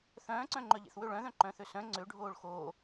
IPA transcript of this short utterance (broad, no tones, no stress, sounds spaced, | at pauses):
θ œ̃ː ǀ œ̃ ŋ͡ǃ œ ʎ ḛ θ w ø ɭ œ̃ ð œ̃ ǃ œ̃ː θ ø s œ̃ ŋ͡ǀ ø ɖʱ oː ɭ x oː